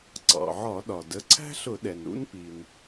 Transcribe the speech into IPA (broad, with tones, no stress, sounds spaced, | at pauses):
ǀ ɑ̰˩ ʕ ɒ˧˩˧ ɗ ɒ˩ d ə˩˧˩ ǀʰ æ̤˥ ɬ ʊ˧˩˧ ɗ ɛ˩ n ɾ ṵ˧˥ n p i˩ n